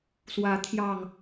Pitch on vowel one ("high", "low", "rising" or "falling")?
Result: rising